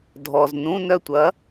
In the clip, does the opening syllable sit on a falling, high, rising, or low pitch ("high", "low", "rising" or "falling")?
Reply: low